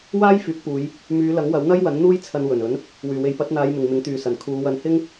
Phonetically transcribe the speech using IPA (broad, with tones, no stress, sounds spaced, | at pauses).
w aː˥ j f yː˨˥ k̚ p uː˨˧ j | m yː˨˧ l ɐ˨˥ ŋ w ɐ˨˥ w n̪ ɐ˥ j w ɐ˨˥ n n̪ uː˥ j t͡sʰ ɐ˧ n w ɵ˨˩ n ɵ˨˥ n | w yː˨˩ w e˨˧ j p ɐ˨˥ t̚ n̪ aː˨˧ j m ɪ˨ ŋ m ɪ˨˥ ŋ t̪ yː˨ s ɐ˨˩ n kʰ uː˨˧ w ɐ˧ n h ɪ˥ ŋ